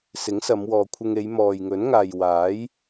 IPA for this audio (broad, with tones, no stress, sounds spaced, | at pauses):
s ɪ˨˥ ŋ s ɐ˨˧ m w ɔː˨ kʷʰ ɪ˧ ŋ e˨˧ j m ɔː˨ j ŋ ɵ˨˥ n ŋ aː˨ j w aː˨˥ j